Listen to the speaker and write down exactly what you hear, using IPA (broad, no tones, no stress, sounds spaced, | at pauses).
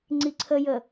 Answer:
ŋ͡ǀ i ǀʰ ə j ə